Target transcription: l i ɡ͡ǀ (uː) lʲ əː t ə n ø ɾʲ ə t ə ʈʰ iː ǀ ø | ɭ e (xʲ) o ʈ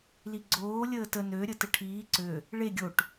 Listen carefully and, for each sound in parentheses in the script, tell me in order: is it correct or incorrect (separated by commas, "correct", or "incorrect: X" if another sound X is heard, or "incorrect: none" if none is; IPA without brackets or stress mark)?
incorrect: oː, incorrect: ɡʲ